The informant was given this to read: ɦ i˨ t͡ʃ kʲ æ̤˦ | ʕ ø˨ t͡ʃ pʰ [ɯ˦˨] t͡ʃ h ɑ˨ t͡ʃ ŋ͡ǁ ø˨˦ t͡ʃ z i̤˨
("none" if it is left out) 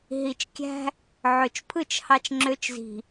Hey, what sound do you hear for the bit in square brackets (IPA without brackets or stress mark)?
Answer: ɯ˦˨